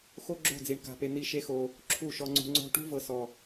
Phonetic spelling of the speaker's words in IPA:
x o˦ ɡ͡ǁ o̤˦˨ d͡z i˨ ɳ k a̤˧ p e˧ n̪ i˦˨ ʃ e˦ x o˧ | ǁʰ u˦˨ ʃ ɔ˧ ŋ͡ǀ ṳ˧ ŋ͡ǀ o̤˦ ʈ ṳ˦ v ɤ˨ s ɔ˨

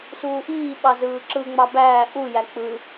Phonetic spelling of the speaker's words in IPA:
s uː ʔ iː ɓ ɑ z ɯː ǁ ɯ ŋ͡m ɑ b æː ʔ u j æ k͡p ɯ

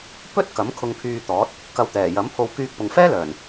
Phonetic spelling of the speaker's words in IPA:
p ɵ˥ t̚ k ɐ˨˥ m kʰ ʊ˧ ŋ pʰ yː˧ t̪ ɔː˨˥ t̚ | k ɐ˧ w t̪ ɛː˨˩ j ɐ˨˥ m pʰ o˧ w k yː˧ k̚ p ʊ˨ ŋ f ɛː˥ l œː˨˩ n

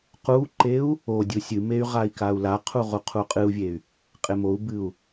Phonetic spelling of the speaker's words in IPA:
q u ǃ e u̯ | o dʲ u sʲ ɨ m e y̯ ʁ a i̯ k a u̯ l a qʰ u ʁ u qʰ u qʼ ɨ u̯ vʲ e y̯ | qʼ e m o u̯ b ɨ u̯

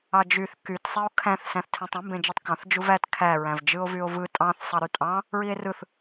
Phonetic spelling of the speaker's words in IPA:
ɑ d͡ʒ y θ k y t sˤ e o̯ kʰ æ̃ θ s æ̃ θ tʰ ẽ tˤ ũ m b ẽ d͡ʒ e tˤ k ɑ̃ θ d͡ʒ u v æ t kʰ æ ɹ æ̃ v d͡ʒ ɯ o̯ v y o̯ v ɯ tʼ ɑ̃ θ sˤ ɑ ɾ y tʼ ɑ̃ | ɹ i e̯ r ɯ θ

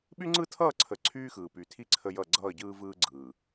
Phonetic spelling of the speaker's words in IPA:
ɓ y˦ ŋ͡ǀ ɯ˦ tʰ ʌː˦˨ ǀʰ ə˨ ǀʰ yː˦ x ɯː˨ p y˨ tʰ i˦ ǀʰ ə˦ j ʌ˦˨ ɡ͡ǀ ʌː˦˨ ɟ ɯː˦ v ɯː˦ ɡ͡ǀ ɯː˨

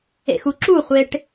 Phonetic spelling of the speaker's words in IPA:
ḛ x u ǁ u χʷ e ʈ

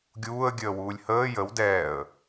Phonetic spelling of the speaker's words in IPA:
ɡʲ uː ə̯ ɡʲ əː w uː lʲ h əː j ə w d ɛː ə̯

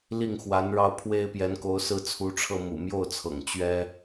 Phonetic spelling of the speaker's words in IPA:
l i˥˩ ŋ x w a˧˥ n ɻ ɑ˥˩ ʊ̯ pʰ w e˥ ɪ̯ p j ɛ˧˥ n k o˧˥ ʊ̯ s ɹ̩˥˩ t͡sʰ u˧˥ ʈ͡ʂʰ ɤ˥˩ m ṵ˨˩ m j o˥˩ ʊ̯ t͡sʰ ɤ̰˨˩ ŋ t͡ɕ ɥ ɛ˥

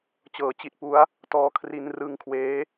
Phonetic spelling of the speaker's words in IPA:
t͡ɕ ɤː˩˦ t͡ɕ i˨˩ t̚ p u˦˥ a̯ | t ɔː˨˩ kʰ r i˧ n r ɯ˦˥ ŋ kʰ w eː˦˥

